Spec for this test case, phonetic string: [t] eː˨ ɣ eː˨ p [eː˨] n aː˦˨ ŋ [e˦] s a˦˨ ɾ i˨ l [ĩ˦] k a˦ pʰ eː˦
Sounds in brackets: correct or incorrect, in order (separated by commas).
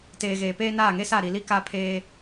correct, incorrect, correct, incorrect